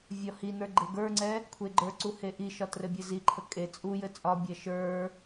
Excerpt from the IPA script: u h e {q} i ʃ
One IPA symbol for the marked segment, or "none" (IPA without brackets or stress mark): ʔ